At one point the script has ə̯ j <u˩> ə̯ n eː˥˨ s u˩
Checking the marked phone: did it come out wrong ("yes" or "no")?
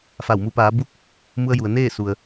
no